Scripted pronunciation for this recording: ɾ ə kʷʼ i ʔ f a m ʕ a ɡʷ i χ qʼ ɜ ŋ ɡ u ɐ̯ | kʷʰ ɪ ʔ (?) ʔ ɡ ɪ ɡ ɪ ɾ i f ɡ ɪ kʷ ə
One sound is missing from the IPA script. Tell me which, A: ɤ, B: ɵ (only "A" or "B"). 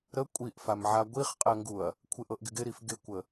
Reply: A